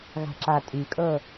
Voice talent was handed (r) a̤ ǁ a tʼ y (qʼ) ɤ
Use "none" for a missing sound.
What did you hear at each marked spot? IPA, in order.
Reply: ɣ, kʼ

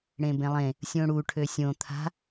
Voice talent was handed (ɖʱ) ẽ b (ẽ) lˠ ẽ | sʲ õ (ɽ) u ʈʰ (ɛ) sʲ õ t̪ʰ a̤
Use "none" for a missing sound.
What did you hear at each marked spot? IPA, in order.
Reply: ɽ, ẽ, ɽ, ø

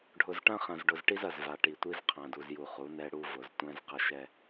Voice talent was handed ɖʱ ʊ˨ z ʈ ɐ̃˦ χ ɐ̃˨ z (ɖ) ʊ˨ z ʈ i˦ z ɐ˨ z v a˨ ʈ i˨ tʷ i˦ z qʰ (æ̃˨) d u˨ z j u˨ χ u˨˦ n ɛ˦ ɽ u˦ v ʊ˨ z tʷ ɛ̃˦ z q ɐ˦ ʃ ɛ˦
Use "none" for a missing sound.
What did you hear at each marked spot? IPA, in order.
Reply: ɖ, ã˨

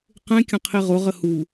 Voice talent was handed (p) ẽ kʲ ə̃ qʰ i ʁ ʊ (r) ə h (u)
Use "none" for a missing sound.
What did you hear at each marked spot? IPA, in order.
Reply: q, ʁ, u

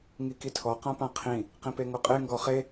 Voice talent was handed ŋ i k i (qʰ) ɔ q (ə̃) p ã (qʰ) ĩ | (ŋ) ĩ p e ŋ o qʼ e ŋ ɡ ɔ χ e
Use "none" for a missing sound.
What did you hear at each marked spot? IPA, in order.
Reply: tʰ, ã, qʰ, q

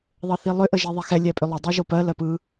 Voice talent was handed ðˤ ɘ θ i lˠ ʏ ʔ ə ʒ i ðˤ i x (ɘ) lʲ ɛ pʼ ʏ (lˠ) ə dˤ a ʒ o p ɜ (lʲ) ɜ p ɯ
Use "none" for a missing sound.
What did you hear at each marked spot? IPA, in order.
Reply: ɛ, lˠ, l

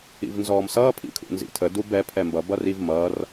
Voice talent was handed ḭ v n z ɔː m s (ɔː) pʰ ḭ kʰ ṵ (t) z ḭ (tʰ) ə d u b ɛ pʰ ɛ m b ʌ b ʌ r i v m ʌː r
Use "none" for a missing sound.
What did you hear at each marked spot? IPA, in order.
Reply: ʌː, n, tʰ

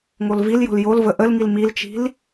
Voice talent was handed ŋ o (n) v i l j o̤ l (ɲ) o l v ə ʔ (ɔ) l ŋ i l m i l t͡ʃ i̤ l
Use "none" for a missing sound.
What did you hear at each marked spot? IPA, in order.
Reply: l, j, ə

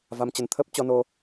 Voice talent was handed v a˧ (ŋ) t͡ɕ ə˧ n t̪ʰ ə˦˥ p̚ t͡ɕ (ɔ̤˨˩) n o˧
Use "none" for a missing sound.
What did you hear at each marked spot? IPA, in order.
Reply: m, ɔ˧

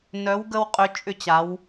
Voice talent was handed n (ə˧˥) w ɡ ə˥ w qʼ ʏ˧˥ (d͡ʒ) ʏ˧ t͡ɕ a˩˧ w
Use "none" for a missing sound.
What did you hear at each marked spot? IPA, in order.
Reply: œ˧˥, t͡ʃʼ

